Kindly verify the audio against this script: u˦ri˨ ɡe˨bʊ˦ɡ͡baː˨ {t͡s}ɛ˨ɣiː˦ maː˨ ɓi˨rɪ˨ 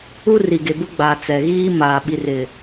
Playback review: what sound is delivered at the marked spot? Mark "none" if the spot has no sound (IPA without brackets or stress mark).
t͡s